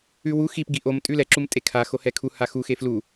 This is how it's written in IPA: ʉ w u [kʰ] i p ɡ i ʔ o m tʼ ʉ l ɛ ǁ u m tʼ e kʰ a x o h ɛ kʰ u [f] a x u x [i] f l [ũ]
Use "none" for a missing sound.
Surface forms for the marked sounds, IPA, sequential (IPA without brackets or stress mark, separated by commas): x, h, e, u